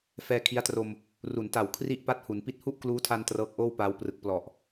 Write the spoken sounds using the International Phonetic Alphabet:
f ɛː˧ kʰ i˦˥ a̯ t r o˧ m | r u˩˦ n t a˨˩ w kʰ r i˥˩ ʔ p a˥˩ t̚ h u˩˦ n p i˦˥ t̚ h u˥˩ ʔ k l uː˦˥ tʰ a˧ n t r ɤː˦˥ k̚ ʔ oː˥˩ w p aː˧ w p r ɯ˨˩ k̚ p l ɔ˨˩ ʔ

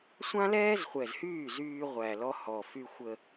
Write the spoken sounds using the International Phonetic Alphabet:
sʷ ã˦ l ɛː˦ z χʷ ɛ˨ z h yː˦˨ z yː˧ ʁʷ æ˨ l ɔ˧ h ɔ˨ f y˧ xʷ ə˧

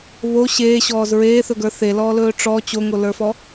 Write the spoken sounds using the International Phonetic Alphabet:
β o ɕ eː ɕ ɔː z ɹ eː θ ɵ ɡ ə˞ θ e l ɔː l ɵː ʈ͡ʂ ɔ t͡ɕ o ŋ o l ə˞ f ɔ

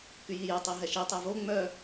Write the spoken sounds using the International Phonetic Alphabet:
k y j i j e tˤ i ɦ ɛ ʃ i tˤ ø v o ŋ͡m œ

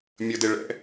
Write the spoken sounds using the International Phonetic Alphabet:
mʲ ə d e ɭ ɛ̰

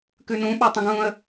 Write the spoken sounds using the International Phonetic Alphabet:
k ʉ n ũ ɓ a tˤ ũ ɡ ũ ə̯

